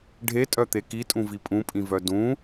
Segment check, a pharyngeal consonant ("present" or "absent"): absent